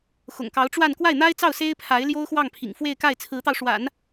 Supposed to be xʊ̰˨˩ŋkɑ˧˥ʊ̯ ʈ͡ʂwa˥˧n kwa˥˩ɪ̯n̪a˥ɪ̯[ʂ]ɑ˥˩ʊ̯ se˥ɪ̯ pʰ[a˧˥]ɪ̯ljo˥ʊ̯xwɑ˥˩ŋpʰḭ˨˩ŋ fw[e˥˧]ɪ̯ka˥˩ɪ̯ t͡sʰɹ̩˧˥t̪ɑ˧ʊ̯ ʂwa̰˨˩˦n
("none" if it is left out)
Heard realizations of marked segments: t͡s, a˧˥, e˥˧

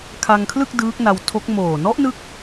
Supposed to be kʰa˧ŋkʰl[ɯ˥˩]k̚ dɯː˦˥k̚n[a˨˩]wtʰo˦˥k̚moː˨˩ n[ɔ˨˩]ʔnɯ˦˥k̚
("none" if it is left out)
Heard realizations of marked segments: ɯ˥˩, a˧, ɔ˦˥

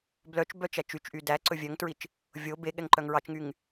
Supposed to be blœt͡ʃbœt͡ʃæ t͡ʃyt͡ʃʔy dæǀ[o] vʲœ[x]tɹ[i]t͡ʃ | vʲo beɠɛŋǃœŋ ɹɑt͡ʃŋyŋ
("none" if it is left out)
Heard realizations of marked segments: ɵ, ŋ, i

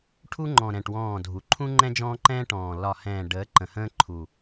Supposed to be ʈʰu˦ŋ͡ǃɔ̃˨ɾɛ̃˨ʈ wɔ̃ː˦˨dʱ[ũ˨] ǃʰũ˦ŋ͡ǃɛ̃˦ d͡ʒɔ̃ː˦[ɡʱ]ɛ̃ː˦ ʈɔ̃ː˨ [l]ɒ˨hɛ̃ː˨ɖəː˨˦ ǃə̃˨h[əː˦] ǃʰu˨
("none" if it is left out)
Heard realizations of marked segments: u˨, ǃ, l, ə̃ː˦

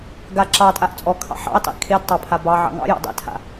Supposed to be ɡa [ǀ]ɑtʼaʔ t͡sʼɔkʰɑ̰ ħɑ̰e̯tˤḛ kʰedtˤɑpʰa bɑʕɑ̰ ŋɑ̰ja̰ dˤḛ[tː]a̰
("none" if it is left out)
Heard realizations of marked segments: ǁ, tʰ

